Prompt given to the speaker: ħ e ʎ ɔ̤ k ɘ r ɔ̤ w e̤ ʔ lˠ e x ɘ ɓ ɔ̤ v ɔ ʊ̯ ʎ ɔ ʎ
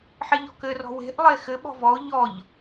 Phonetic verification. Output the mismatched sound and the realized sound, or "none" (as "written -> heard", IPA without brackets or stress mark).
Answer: none